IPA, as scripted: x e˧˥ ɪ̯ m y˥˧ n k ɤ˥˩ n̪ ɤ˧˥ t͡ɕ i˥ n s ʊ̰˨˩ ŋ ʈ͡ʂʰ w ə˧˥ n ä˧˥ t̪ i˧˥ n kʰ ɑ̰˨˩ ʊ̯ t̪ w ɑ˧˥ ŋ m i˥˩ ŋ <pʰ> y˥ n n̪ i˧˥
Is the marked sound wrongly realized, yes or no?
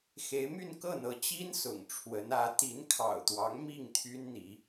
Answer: yes